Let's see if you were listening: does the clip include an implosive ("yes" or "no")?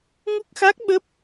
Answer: yes